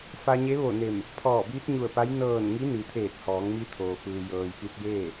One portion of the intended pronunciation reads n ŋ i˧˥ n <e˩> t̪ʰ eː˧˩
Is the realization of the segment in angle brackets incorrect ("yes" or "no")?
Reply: yes